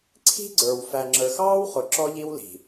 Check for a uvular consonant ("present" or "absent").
present